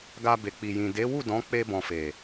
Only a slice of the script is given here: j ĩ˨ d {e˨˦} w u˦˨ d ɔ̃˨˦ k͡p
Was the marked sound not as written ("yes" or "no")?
no